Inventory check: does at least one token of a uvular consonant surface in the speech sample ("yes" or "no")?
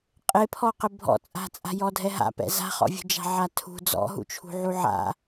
yes